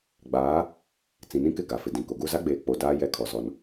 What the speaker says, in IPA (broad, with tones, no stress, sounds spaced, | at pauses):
ɡ͡b aː˨˦ | t͡s ĩ˨ n ĩ˦ k ɪ˦˨ ɡ a˨ f ɪ˨ d ĩ˨ k o˨ ɡ u˦˨ z a˦ ɡ͡b eː˨ k͡p o˨ d aː˦ j ɛ˦ kʰ ɔ˨ z ɔ˨ n